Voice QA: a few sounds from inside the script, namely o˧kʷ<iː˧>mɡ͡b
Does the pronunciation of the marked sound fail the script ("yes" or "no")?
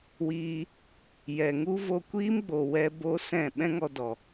yes